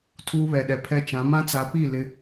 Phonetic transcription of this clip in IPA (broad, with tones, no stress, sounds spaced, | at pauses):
tʰ uː˦ β ɛ˨ ɗ ɛ˨ pʰ ɛ˦ t͡ʃ ã˨˦ m ã˦ t͡s a˨˦ p i˦˨ l ɪ˦